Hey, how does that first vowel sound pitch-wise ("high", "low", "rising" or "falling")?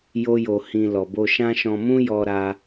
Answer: high